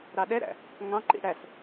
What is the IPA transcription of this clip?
ɾ ɑ ɗ ɛ ɾ æ̰ | ŋ ɑ̃ ǃ ḭ ɽ æ s

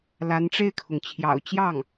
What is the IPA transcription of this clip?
l a˧˥ n ʈ͡ʂ e˥˩ ɪ̯ kʰ ʊ˩ ŋ t͡ɕʰ j ɑ̰˨˩ ʊ̯ t͡ɕ j ɑ˥˩ ŋ

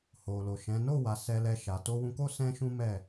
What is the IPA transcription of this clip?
h o˨ l o˨ ʃ ɛ̃˨˦ n o˦˨ w a˨˦ s ɛ˧ l ɛ˧ ʃ a˨ t o˧ w ũ˧ k o˦ s ɛ̃˦ ʃ ũ˦ m ɛ˦˨

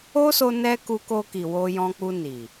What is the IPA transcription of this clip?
o˦ s o˧ n ɛ˧ k u˧ k o˧ k i˨ w o˧ j ɔ̃˧ k͡p u˧ n i˨

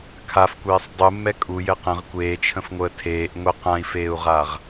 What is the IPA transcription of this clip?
kʰ a f kʷ eː sˤ dˤ u mː ɛ kʼ u j ɘ q ə̃ ʁ kʷ eː t͡ʃʰ ə̃ f ŋʷ əː tʰ eː ʔ ŋʷ ɛ q ã i̯ f eː u̯ ʁ a ʁ

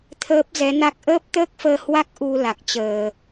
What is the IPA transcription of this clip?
t̪ʰ əː˦˥ p̚ z ɛ˨˦ n a˦˥ k̚ ʔ əː˦˥ p̚ t̪ əː˦˥ k̚ f əː˧ h w a˦˥ k̚ ʔ u˧ l a˨˩ k̚ t͡ɕ əː˨˩

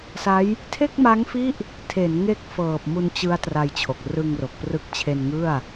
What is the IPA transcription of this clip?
s a˦˥ j | tʰ e˥˩ k̚ m a˦˥ ŋ f i˦˥ ʔ | tʰ e˩˦ n ŋ e˦˥ k̚ f ɤː˨˩ p̚ m u˧ n t͡ɕ ɯ˦˥ a̯ t r a˧ j t͡ɕʰ o˨˩ k̚ r ɯ˧ ŋ r o˨˩ k̚ p r ɯ˦˥ k̚ t͡ɕʰ e˧ n ŋ ɯ˥˩ a̯

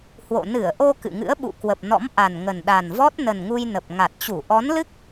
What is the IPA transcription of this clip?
h w o̰˧˨ n ɨ˧˩ ə̯ ʔ o˧ k ɨ̰˧˨ ŋ ɨ̰˧˥ ə̯ ɓ ṵ˧˨ k w ə˨˩ p̚ n ɔ̰˧˥ m ʔ a˨˩ n ŋ ə˨˩ n ɗ a˨˩ n v ɔ˦˥ t̚ n ə˨˩ n ŋ u˧ j n ə˨˩ p̚ ŋ a˨˩ t̚ t͡ɕ u˧˩ ʔ ɔ˨˦ n l ɨ˦˥ k̚

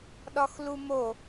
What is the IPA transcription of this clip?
ɗ ɒ x l u m o

